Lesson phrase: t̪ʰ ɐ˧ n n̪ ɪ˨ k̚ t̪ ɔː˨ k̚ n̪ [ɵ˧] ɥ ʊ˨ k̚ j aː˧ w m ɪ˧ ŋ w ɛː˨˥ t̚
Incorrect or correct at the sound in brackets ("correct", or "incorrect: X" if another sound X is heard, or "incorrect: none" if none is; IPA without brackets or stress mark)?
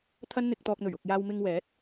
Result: incorrect: ɵ˨˩